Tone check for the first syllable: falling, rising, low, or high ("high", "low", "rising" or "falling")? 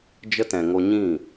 high